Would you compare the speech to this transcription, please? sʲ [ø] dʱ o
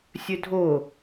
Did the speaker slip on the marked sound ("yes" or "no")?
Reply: no